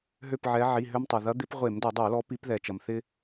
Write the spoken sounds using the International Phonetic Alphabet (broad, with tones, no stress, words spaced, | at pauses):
ɦø˦˨pʕɛ˨˦ ʕi˩˧˩ɦø˦mtˤo˩ ðɐ˨˦d̪ɪ˨˦p ʁʷe˧˩˧mdɐ˧˩˧dˤo˧˩˧lɔ˨˦ pi˨˦pðɛ˩t͡ʃɐ˩mθɪ˦